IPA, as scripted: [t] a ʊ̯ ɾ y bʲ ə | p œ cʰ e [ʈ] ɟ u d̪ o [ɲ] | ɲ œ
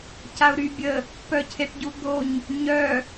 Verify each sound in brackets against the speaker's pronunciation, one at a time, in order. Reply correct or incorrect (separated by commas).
incorrect, correct, correct